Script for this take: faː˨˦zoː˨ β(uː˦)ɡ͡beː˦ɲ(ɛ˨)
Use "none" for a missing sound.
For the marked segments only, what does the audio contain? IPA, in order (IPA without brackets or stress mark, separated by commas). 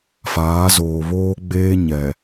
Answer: oː˦, ɛ˨